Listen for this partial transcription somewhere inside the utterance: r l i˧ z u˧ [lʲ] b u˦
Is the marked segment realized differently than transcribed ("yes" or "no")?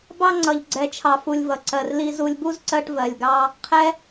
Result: no